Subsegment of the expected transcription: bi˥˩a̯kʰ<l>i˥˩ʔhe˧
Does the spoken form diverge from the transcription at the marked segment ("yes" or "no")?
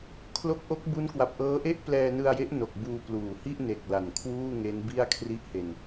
yes